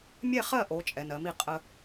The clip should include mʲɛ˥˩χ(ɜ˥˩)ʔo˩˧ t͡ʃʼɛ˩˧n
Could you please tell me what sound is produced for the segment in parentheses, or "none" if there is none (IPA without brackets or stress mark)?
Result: ɜ˥˩